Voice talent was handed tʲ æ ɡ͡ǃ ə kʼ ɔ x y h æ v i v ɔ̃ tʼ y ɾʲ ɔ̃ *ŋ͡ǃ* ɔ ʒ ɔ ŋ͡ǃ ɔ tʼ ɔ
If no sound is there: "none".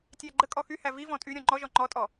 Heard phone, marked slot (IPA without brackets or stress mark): ŋ͡ǃ